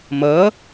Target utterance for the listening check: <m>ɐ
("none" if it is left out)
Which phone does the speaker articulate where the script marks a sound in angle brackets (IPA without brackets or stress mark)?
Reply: m